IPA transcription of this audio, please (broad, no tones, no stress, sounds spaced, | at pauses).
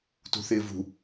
t ṳ θ ɪː v ṳ